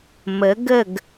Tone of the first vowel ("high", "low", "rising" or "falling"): rising